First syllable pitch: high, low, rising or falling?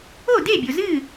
falling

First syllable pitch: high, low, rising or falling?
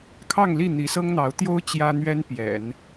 falling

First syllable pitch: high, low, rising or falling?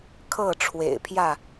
falling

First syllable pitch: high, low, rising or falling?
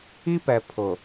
high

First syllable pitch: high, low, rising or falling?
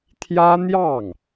high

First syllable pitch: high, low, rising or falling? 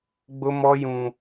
high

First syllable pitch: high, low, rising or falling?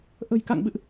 low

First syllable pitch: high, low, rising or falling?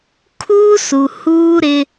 high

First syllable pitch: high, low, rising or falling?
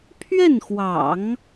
falling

